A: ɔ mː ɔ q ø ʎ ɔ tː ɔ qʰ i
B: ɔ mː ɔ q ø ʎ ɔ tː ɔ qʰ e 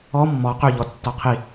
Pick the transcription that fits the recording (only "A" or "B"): A